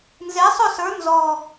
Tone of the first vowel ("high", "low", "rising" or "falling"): rising